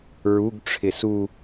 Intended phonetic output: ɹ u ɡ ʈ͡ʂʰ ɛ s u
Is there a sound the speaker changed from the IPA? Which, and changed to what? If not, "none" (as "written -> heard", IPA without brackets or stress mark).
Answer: ɛ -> ɪ